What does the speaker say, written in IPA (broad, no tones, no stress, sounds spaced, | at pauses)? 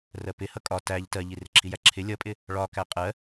r ɜ p ɪ h ʌ kʼ ɒ t æ ʎ t ɜ ʎ i r ɪ ǁʰ i j æ ǁʰ ɪ lʲ ʌ pʼ ɪ | ɭ ɒ k æ qʼ ɜ